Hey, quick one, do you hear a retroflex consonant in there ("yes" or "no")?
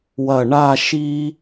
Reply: yes